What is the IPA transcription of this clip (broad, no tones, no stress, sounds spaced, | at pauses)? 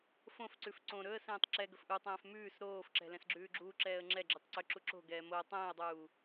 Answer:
f õ f ǀ ʉ f ǀ õ ɾ ɵ ə̯ s ɛ̃ː tˤ ǁ ɛ ɡ ɵ f ʔ u tˤ ɛ̃ː f m ʉː s ɾ oː f ǁ ɛ̤ l ɛ̃ s ɡ͡ǁ ʉː ɡ͡ǁ uː ǁ ɛː ə̯ ŋ͡ǁ ɛ ɡ͡ǁ ʉ tˤ ǀ ɵ ǁ u ǁ o̤ ɡ ɛː m o ə̯ tˤ ɛ̃ː ə̯ dˤ uː